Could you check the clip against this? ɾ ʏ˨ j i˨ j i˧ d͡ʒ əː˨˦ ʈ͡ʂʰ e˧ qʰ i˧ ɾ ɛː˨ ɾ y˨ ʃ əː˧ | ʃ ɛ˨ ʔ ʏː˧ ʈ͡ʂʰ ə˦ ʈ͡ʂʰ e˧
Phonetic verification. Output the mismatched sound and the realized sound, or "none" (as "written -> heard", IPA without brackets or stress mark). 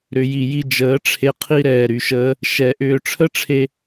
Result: none